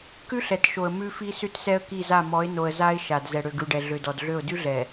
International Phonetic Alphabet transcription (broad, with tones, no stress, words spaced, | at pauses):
kʉ˦ɬɛ˨tʃo˨ə̯ mʉ˦fi˦ sʉ˦tsɛ˦ə̯ki˦˨za˦˨ mɔ˨˦ɪ̯no˨ə̯ za˦ɪ̯ ʃa˨d zɛ˨ɽø˨ɡʉ˨ɖɛ˨ ɮø˨dɔ˨dɮø˦˨ʊ̯ dʉ˦ɮɛ˨